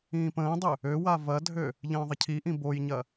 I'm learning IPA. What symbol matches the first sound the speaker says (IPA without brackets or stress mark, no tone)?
ĩː